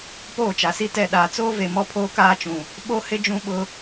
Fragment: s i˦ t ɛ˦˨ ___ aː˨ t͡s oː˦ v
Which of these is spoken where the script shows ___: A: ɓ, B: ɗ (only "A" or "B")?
B